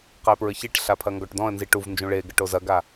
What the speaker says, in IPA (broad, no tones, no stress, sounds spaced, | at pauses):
q ɐ ɪ̯ p ɹ ɘ ç i ʈ ɬ a pʰ ɐ ŋ ɡ ɔ ʈ d ɔ̃ ə̯ n z i ʈ u v n d͡ʒ ũ ɭ e ɡ ɘ ʈ o z ɐ ɡ a